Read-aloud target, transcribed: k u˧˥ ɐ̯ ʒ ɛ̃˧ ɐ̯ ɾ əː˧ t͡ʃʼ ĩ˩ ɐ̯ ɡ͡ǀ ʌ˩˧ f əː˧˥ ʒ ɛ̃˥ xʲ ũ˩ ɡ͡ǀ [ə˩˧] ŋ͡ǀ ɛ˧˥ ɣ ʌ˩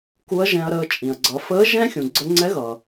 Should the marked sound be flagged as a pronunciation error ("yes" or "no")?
yes